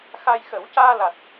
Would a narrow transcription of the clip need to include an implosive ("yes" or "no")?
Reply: no